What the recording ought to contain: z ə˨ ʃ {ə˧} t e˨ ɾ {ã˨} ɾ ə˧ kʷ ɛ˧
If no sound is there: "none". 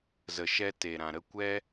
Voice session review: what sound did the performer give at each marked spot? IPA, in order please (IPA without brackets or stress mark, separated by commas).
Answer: ɛ˧, ã˨